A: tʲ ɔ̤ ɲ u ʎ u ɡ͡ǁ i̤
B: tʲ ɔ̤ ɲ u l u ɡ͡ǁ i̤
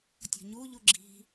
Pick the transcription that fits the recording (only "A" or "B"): A